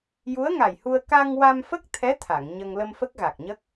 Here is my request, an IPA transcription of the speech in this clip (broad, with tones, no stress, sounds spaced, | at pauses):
j u˧˥ ə̯ ŋ a˨˩ j h u˧ ə̯ k a˧ ŋ w a˧ m f ə˦˥ k̚ t̪ʰ ɛ˧˥ t̪ʰ a˨˩˨ ŋ ɲ ə˧ ŋ l ə˧ m f ə˦˥ k̚ ɣ a˨˩ k̚ ɲ ə˦˥ k̚